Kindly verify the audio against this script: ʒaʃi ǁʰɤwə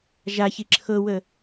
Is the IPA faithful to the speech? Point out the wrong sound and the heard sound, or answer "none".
ʃ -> ç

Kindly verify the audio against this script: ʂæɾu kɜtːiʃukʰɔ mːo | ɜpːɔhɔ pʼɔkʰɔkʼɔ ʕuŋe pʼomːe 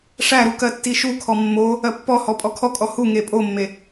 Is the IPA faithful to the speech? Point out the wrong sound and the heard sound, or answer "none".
ʕ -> h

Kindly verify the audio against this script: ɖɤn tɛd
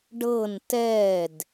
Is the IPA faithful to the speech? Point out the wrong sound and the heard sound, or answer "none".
none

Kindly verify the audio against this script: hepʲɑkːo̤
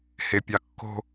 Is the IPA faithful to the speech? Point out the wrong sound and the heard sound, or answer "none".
none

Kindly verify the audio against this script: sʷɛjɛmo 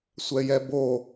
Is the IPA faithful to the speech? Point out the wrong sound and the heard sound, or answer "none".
m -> b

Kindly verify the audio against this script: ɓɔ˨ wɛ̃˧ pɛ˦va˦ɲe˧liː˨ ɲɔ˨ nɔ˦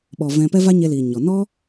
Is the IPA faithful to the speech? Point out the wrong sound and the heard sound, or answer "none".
w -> v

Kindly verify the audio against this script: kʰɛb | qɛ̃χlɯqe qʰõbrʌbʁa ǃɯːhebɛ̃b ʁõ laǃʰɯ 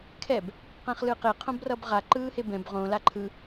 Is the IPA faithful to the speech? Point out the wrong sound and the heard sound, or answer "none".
none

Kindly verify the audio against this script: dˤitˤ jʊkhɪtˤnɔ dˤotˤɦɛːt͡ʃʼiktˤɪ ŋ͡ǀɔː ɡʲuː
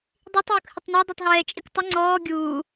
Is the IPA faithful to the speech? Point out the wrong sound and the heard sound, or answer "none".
none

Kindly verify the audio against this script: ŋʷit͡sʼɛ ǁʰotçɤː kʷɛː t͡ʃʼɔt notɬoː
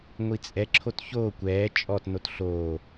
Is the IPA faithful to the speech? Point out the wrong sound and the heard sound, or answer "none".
ɤː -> oː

